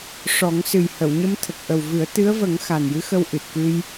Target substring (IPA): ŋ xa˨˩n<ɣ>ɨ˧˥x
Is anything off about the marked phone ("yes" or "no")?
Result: yes